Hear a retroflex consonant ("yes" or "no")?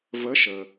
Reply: no